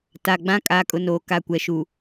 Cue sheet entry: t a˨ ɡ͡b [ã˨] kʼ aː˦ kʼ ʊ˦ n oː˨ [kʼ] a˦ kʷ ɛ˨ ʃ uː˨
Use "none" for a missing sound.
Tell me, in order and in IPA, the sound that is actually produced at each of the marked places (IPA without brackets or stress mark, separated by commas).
ã˦, k